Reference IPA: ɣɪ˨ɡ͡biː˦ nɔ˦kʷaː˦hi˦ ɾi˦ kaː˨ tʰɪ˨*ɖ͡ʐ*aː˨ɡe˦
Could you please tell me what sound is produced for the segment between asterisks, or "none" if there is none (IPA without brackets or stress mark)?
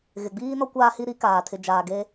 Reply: d͡ʒ